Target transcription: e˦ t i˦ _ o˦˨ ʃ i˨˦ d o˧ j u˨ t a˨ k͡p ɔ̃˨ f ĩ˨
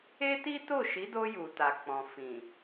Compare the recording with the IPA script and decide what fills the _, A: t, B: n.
A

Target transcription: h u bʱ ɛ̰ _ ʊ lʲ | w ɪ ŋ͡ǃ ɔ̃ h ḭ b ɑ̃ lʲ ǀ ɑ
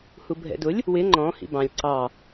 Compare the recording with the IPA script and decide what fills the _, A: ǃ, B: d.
B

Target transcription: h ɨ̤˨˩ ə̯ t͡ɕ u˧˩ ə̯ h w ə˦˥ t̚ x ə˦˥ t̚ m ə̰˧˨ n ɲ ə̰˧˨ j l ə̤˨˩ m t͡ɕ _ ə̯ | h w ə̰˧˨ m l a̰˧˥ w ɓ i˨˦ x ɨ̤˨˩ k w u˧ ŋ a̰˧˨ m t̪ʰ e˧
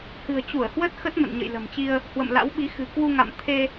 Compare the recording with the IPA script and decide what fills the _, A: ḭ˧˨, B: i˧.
B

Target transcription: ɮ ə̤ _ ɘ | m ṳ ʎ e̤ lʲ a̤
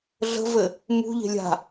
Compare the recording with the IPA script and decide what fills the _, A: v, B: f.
A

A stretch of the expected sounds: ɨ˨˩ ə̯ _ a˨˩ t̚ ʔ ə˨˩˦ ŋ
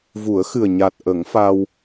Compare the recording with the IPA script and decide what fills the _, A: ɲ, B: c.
A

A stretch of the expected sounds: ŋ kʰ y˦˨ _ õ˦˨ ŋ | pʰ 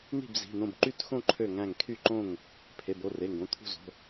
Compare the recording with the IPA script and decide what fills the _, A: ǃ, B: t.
A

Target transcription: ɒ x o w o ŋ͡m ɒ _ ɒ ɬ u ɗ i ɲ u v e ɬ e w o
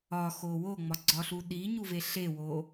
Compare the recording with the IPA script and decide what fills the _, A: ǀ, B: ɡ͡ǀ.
B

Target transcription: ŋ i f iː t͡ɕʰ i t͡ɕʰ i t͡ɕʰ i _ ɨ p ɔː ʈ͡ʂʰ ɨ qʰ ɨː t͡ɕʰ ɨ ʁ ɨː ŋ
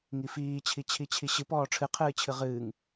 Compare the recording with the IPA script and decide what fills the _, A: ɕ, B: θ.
A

